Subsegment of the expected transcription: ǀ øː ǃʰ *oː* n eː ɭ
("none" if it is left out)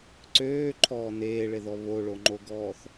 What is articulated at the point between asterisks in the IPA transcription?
ɔː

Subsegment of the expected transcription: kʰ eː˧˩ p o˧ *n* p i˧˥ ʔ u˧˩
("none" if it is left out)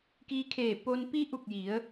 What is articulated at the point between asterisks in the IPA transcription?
n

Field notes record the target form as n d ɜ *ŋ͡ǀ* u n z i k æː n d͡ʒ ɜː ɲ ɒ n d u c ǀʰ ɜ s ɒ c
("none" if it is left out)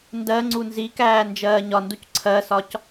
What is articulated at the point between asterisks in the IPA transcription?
ŋ͡ǀ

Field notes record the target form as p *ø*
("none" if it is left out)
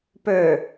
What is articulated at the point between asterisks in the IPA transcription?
ø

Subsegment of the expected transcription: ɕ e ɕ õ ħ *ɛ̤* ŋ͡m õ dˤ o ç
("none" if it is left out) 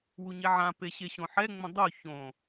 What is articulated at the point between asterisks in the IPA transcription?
ɛ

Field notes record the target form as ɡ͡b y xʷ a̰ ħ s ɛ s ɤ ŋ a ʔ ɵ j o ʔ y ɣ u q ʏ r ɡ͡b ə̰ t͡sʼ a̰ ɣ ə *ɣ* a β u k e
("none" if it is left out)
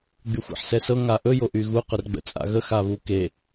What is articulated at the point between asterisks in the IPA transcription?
x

